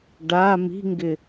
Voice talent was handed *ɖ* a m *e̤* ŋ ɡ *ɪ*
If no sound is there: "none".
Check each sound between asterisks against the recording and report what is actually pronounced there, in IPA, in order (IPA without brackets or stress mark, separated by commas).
ɖ, i̤, ɪ